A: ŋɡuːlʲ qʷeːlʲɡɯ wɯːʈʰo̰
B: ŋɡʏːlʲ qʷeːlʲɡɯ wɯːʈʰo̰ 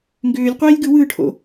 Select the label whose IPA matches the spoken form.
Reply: B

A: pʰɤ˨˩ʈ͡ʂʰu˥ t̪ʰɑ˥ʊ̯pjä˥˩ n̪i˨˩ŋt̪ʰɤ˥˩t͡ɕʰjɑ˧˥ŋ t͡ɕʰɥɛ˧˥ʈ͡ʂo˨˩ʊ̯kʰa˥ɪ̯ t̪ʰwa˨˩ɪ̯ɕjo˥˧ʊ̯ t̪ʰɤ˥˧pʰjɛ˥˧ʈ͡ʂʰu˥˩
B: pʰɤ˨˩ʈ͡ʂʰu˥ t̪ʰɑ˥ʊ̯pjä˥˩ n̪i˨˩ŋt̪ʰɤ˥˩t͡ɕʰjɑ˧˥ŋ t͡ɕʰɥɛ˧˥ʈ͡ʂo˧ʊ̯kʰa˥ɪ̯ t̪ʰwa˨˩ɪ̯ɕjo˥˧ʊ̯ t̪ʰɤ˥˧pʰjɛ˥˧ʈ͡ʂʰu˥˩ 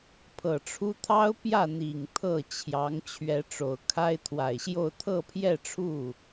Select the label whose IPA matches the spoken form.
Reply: A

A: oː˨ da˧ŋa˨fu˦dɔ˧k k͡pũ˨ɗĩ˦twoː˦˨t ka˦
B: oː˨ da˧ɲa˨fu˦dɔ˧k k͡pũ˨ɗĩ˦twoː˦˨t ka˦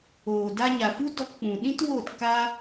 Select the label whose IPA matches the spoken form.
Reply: B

